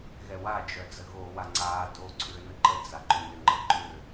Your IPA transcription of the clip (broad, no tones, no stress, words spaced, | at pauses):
ɣɛwad͡ʒœd͡zə ɣoːwaŋ͡ǀaː do ǀʰʏːnəǃə d͡zaǃʏnʏ ŋ͡ǃɤǃʏː